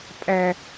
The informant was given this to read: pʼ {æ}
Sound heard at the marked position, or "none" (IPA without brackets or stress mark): æ